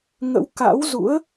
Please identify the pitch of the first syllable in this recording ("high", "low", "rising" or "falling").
rising